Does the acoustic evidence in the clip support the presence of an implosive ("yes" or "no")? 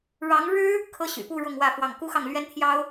no